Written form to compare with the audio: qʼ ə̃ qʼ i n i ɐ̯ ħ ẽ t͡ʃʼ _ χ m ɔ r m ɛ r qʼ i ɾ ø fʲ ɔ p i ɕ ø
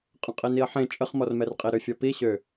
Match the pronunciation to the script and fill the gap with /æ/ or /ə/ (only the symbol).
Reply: ə